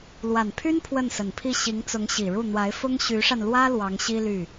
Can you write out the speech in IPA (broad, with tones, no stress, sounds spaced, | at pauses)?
l w a˨˩ n pʰ y˥ n pʰ w ə˥˩ n s ə˨˩ n pʰ i˥˩ ɕ i˧˥ ŋ t͡s ʊ˧˥ ŋ ɕ i˨˩ ɻ u˥˩ n̪ w a˧˥ ɪ̯ f ʊ˥ ŋ ɕ y˧˥ ʂ a˧ n l w ä˥ l w ɑ˧˥ ŋ ɕ i˥ l y˥˩